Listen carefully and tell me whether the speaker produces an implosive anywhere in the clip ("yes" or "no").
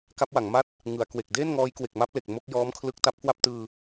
no